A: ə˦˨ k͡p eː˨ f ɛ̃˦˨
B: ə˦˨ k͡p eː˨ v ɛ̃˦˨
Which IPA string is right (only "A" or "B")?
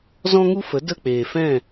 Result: A